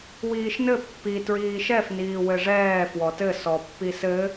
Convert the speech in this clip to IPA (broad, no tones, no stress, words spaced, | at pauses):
wiːʃnɘ pːi tɹiːʃɛf niːwɘʐɛː fwɔtɘ sɔpːisɘ